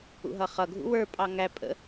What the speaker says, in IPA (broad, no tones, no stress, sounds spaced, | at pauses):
ṵ ɦ ʌ χ ʌ ɡʱ ṵ w ə˞ pʼ ɑ ŋ æ pʼ ə̰